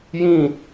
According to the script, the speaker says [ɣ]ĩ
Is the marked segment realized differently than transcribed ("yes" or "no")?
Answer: yes